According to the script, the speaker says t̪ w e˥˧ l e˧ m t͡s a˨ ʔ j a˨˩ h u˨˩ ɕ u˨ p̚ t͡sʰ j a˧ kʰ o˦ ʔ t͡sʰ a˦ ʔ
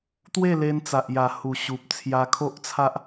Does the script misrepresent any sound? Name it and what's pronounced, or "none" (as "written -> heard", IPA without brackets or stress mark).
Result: m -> n